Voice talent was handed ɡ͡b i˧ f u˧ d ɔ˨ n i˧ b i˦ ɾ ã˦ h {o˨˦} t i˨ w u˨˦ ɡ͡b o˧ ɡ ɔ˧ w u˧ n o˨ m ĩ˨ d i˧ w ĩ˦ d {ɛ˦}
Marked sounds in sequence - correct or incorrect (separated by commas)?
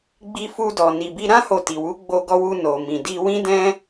incorrect, incorrect